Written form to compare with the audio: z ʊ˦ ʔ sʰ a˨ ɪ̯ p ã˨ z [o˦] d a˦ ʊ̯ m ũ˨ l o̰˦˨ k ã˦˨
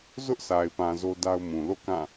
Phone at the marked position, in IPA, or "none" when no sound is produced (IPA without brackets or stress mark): o˦